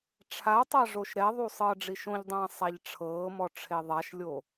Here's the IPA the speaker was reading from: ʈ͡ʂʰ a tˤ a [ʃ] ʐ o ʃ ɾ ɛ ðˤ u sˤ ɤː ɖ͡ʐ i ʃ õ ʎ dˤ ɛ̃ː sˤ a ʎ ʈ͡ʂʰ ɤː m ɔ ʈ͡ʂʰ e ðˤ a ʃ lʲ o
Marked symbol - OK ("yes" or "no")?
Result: no